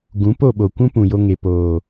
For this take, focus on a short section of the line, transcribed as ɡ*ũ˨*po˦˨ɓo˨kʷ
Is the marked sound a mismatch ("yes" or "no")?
yes